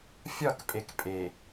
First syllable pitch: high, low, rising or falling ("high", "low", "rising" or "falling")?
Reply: falling